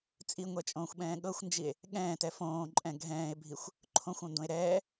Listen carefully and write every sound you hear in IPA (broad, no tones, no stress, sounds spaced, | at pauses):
t͡sʼ i ŋʷ ɛ t͡ʃʼ õː xʷ ɓ ɛ̃ː ɠ ɤ xʷ n d͡ʒ i e̯ | ɠ ɛ̃ː t ɛ f õː ǃʼ ɛ̃ ɡʱ ɛ̃ː e̯ bʱ i xʷ | ǃʰ õ xʷ õ n d õ e̯ ɾ ɛː